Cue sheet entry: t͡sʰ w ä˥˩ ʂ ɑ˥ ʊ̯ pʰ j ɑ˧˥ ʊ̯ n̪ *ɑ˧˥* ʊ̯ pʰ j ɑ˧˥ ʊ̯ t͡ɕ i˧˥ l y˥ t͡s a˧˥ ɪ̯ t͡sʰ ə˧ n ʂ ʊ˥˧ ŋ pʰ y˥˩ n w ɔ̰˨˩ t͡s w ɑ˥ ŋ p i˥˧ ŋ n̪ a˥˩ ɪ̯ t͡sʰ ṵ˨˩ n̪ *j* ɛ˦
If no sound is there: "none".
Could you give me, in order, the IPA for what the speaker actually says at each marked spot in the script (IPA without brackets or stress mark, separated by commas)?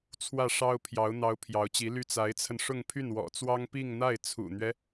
ɑ˧˥, ɥ